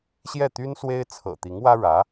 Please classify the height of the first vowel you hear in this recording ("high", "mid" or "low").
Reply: mid